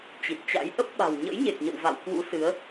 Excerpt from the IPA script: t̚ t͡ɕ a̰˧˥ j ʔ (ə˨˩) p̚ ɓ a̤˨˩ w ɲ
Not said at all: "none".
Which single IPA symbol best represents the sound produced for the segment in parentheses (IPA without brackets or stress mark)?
ə˦˥